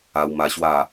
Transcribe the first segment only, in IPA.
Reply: a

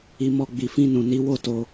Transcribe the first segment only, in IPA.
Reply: i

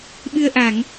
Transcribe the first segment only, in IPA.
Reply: ɓ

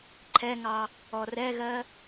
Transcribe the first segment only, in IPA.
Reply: ǃʰ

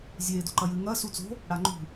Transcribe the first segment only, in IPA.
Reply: zʲ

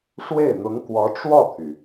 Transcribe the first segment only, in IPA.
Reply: ʂ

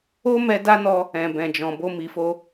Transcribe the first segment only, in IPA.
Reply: o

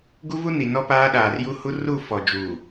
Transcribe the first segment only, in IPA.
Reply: ɡ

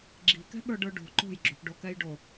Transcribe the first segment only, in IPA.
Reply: ɡ͡ǁ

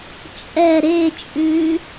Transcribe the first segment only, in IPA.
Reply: t͡ʃʼ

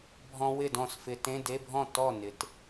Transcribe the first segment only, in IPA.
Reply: bʱ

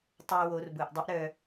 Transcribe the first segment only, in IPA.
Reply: tˤ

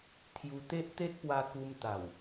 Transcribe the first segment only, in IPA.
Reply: t̪ʰ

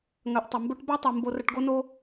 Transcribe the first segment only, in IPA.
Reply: ŋ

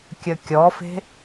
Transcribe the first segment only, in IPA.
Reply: kʲ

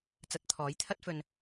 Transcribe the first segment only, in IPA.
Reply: t͡s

